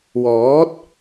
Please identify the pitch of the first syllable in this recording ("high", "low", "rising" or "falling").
rising